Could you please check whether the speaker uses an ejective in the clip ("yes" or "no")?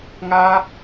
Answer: no